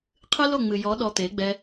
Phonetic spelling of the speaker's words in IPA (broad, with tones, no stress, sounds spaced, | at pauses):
qʰ ɨ˦ l o˦˨ ŋ͡m ɨ˨ j ɔ˨˦ ɗ ɔ˧ t̪ e˨˦ ɡ͡b ɛ˧